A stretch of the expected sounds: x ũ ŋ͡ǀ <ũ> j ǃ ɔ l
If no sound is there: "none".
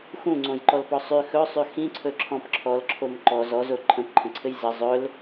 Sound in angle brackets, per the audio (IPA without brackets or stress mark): õ